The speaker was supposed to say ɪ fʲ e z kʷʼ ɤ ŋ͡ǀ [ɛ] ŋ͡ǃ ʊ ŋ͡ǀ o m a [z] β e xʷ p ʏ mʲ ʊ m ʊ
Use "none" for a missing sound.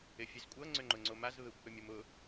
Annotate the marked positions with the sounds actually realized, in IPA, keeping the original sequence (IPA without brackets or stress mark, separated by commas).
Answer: ʏ, z